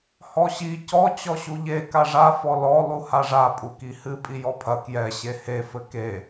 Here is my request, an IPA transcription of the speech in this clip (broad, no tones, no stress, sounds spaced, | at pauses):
h ɔ ɕ i c ɔ t͡ɕ ɔ ɕ u ʎ e k a ʐ a f ɔ l ɔ lˠ u h a ʐ a pʼ u k i h ɨ pʼ i j ɔ pʰ ɐ k j ɛ ɕ e h e f ɘ k e